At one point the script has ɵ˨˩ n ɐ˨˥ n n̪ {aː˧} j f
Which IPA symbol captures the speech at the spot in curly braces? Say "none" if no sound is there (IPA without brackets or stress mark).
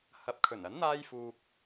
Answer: aː˧